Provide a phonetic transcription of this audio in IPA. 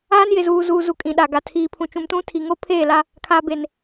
aː˦ n j ɪ˨ z uː˨ z uː˨ z u˨ kʼ ĩ˨ ɗ a˨ ɡ a˨ tʰ iː˨ pʰ ũ˨ t͡ʃ ũ˨ m t ũ˦ tʰ i˨ ŋ o˦ pʰ eː˦˨ l a˦ | kʰ aː˨ b e˨ n

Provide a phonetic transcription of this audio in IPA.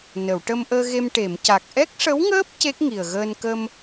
n ə˨˩˨ w ʈ ə˧ m ʔ əː˧ ɣ e˧ m ʈ e˨˩˨ m c a˨˩ k̚ ʔ ɛ˦˥ k̚ ʂ ə˧˥ w ŋ əː˦˥ p̚ c e˦˥ k̚ ŋ i˨˩ ə̯ ɣ əː˧ n k ə˧ m

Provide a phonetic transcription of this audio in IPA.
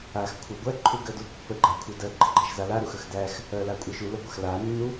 a x kʷʰ a ɡʷ æ ǃʰ u ɡ ɜ d u pː ə ɡ͡ǃ a kʷʰ ə d ɜ ɡ͡ǃ ə ɡ͡ǃ æ ʃ z a l a ɾ u x ə x d æ x | ɜ l a kʷʼ ɜ ʃ u l ə ɡʷ a x l a nː u

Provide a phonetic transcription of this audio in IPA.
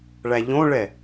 ɭ æ ʎ õ ɭ ɛ

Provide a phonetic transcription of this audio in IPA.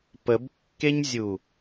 p ə b kː e ɲ zʲ u

